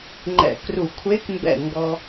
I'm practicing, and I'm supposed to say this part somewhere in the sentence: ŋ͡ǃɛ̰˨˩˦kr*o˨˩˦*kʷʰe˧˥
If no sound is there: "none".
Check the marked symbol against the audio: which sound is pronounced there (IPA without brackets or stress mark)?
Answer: u˨˩˦